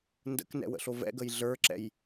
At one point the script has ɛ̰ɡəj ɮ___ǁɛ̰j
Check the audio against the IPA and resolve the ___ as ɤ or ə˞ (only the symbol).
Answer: ə˞